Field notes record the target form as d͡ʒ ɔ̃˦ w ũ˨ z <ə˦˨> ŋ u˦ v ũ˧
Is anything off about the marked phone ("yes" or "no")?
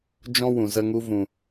yes